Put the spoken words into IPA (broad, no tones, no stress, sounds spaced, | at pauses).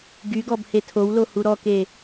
ɡ y ɡ ɔ b h e tʰ o w l o h u ɾ ɔ k e